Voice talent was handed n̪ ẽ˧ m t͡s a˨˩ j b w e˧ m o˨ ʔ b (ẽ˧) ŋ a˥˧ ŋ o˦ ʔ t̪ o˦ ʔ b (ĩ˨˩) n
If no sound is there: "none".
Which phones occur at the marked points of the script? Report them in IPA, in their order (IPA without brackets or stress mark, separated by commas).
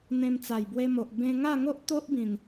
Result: ẽ˧, ĩ˨˩